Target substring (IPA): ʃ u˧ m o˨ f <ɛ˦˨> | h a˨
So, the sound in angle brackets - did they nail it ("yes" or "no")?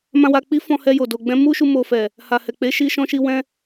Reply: no